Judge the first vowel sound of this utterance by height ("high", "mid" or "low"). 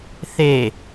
mid